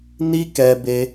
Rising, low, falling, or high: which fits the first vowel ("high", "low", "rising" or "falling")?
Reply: high